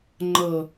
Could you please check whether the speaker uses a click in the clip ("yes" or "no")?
yes